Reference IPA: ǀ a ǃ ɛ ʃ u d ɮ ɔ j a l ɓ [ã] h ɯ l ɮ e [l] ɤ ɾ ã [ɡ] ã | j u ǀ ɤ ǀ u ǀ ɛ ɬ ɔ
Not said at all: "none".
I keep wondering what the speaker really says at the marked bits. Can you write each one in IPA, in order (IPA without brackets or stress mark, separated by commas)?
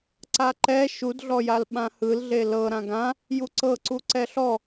ã, l, ɡ